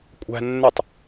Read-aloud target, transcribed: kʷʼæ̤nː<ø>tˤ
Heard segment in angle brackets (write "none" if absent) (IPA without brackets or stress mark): ø